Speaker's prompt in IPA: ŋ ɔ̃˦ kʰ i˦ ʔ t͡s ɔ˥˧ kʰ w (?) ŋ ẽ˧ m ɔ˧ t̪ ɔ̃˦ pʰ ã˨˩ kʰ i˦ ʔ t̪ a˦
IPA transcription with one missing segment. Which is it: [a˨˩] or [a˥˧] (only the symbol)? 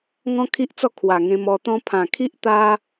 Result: a˨˩